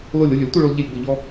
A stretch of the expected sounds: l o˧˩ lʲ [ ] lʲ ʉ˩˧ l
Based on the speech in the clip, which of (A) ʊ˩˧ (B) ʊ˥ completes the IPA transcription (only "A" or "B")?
A